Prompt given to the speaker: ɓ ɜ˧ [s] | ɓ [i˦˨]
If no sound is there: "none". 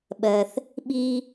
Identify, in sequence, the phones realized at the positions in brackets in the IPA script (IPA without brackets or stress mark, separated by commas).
θ, i˦